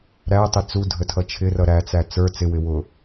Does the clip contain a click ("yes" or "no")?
no